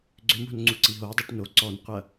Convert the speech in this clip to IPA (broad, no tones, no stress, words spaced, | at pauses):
ɡ͡ǀʏmo̤nŋ͡ǀu ǀiɦo dˤʉʈno ǀɔnqʷɐ